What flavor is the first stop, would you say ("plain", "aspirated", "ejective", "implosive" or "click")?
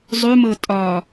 ejective